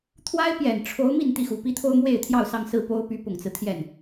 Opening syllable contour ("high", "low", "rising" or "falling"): high